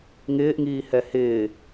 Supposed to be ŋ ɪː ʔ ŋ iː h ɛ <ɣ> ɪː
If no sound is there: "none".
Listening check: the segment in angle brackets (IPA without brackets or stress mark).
h